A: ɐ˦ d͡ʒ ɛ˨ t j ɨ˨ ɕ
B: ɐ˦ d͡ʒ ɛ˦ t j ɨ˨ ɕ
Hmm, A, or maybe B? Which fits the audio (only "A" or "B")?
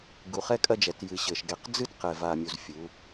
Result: A